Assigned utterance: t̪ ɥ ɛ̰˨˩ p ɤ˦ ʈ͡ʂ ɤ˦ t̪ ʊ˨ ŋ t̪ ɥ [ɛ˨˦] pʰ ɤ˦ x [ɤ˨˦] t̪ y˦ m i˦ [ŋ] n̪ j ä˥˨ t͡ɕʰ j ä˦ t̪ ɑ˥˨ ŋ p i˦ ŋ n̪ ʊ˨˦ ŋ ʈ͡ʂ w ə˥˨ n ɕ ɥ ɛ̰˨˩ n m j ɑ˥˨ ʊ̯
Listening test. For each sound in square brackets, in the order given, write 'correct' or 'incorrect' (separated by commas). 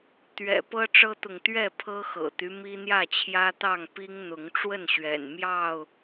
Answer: incorrect, incorrect, incorrect